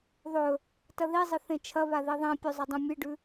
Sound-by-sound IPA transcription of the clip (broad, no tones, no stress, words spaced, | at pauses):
ðˤɵ | tɐðizˤɨ θẽt͡ʃʰɐβa ðiðˤĩpʲu zˤɐdˤũmʲɨɖʉ